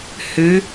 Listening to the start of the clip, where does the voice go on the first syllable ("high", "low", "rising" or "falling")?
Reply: rising